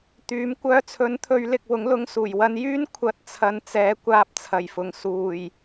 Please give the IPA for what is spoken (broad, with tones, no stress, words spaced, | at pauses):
t̪yː˨˥m kʷœː˧t͡sʰɵ˨˥n t̪ʰɵ˨˧ɥlɪ˨k̚ wʊ˨˥ŋlʊ˧ŋsuː˨˩j wɐ˧n jyː˥nkʷʰɐ˨˥t̚ t͡sʰɐ˧nt͡sɛː˨˥ kʷaː˧p̚t͡sʰɐ˨˩jfʊ˨˩ŋ suː˨˩j